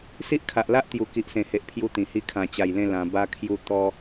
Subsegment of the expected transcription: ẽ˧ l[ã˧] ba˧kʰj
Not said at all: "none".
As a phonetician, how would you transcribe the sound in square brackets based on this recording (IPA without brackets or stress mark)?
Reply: ã˧